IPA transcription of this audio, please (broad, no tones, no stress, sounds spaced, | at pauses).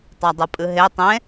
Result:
tˤ a dˤ ɛ pʼ ɨ ɦ e tˤ ẽ